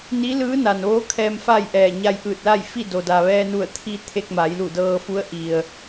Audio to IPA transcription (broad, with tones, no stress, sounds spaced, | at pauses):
n i˧˥ l ɯː˧˥ n a˩ n ʋ oː˧˥ kʰ ɛː˧ m f aː˥˨ j ʔ ɛː˧˩ ɲ a˧ j ʔ ɯː˧˩ t̚ l a˥˨ j f i˥˨ d o˩ d a˩ ʋ ɛː˧ n u˧˩ ə̯ t̪ʰ i˧ t̪ʰ e˧ k̚ m a˩˧ j l u˧˩ d ɤː˧ f u˧˥ ə̯ ʔ i˩ ə̯